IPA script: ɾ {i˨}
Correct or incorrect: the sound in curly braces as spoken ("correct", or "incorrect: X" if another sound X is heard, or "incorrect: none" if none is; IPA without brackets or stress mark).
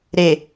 incorrect: e˨